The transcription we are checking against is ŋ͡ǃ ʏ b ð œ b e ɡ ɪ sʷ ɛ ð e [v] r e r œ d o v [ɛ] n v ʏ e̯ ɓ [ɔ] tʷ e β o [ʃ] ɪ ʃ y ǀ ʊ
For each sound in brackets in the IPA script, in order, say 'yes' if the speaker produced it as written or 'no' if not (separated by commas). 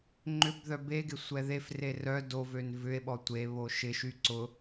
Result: no, no, yes, yes